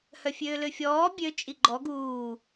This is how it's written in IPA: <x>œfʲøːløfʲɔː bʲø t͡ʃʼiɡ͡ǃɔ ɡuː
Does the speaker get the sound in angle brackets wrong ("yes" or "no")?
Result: yes